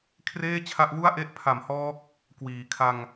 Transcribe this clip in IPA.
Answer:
kʰ r eː˥˩ t͡ɕʰ a˦˥ ʔ w u˥˩ a̯ ʔ e˥˩ ʔ pʰ a˨˩ m h ɔː˦˥ k̚ | k w iː˩˦ kʰ a˧ ŋ

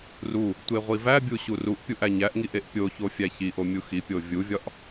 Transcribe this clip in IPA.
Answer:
r u | tʷ e ʁʷ i v æ bʲ u ɕ u r u ʔ pʲ u ʔ æ ɲ æ ʔ ŋ i ʔ e ʔ pʲ o ç o fʲ æ ç i ʔ o mʲ u x i pʲ o vʲ u vʲ ɒ ʔ

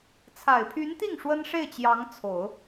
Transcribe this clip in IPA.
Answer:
t͡sʰ a˨˩ ɪ̯ pʰ y˧˥ n t̪ i˥˩ ŋ ʂ w ə˥ n ʂ e˥˩ ɪ̯ t͡ɕ j ɑ˧˥ ŋ t͡sʰ o˨˩˦ ʊ̯

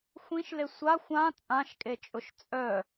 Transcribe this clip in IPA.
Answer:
xʷ ĩ ʃ l e sʷ a xʷ ã t͡sʼ ã ʃ kʼ e t͡ʃʼ ʊ ʃ t͡sʼ œ

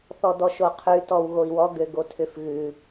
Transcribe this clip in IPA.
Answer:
θ ɔ d ɔ ʃ o qʰ ʉ t ɔ w ɣ o i̯ w ɔ ɡ ø ɡ o tʰ ʏ f ɣ ʉ

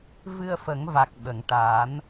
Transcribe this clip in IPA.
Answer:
v ɨ˧ ə̯ f ə˨˩˦ ŋ v a˨˩ k̚ ɓ ə˨˩˨ ŋ ʈ a˨˩˦ n

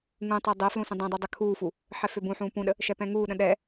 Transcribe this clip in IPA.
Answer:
ŋ ũ tˤ ɛ dˤ ɛ f l ũ s ə̃ dˤ ɛ̃ dˤ u dˤ ə kʰ uː f u | ħ ɛ f ø b ũ ħ ũː p ũ ɗ ə | ʃ ɛ p ɛ̃ ŋ uː ɗ ə̃ ɗ ɛ

